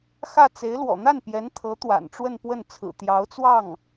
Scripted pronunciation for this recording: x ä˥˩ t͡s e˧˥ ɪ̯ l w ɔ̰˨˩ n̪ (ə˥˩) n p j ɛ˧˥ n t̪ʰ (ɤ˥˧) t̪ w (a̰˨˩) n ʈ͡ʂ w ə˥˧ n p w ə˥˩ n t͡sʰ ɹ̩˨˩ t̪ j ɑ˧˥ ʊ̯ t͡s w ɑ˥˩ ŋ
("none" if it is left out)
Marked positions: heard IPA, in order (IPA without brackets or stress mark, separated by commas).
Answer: a˥˩, ɤ˧˥, a̰˨˩